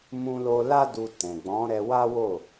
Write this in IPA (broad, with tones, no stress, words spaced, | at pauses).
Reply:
mũ˧lo˧ la˦du˧ tɛ̃˨ɡ͡bɔ̃˨˦ɾɛ˧ wa˦wo˦˨